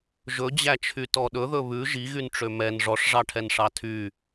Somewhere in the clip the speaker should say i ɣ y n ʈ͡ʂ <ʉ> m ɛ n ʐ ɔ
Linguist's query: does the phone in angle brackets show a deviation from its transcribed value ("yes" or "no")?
yes